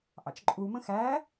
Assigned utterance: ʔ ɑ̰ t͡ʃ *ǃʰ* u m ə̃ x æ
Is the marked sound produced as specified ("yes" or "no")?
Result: no